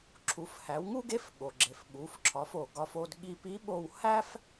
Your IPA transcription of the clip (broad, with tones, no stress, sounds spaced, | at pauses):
ǁʰ u˩˧ f h æ˩˧ w ŋ u˥ ɡ e˧˥ f ɠ o˩ ɡ͡ǁ e˩ f ɓ u˩˧ f ǁʰ ɒ˩˧ f o˩ ɡ ɒ˧ f o˧ d ɠ i˧ p i˧˥ ɓ o˧ w h æ˥ f